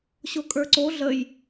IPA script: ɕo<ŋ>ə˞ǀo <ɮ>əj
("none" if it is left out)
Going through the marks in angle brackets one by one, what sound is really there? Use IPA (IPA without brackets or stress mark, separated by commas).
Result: kʼ, ɮ